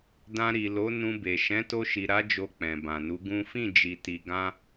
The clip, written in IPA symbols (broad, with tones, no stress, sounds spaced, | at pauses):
d ã˧ ɾ i˨ l o˨˦ n ũ˧ b e˨ ʃ ɛ̃˨˦ t o˧ ʃ i˨ ɾ a˨˦ d͡ʒ o˧ k͡p ɛ̃˨ b ã˨ n u˨˦ ɡ ũ˦ f ĩ˦˨ d͡ʒ i˨ t i˨ ɡ ã˧